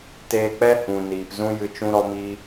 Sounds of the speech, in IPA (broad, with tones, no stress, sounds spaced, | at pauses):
t eː˧ k͡p ɛ˦ h ũ˨ n iː˨ p z ũ˦ j ɨ˧ t͡ʃ ũ˦ ɾ ɔ˦ m iː˦